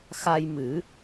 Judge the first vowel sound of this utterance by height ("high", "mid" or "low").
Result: low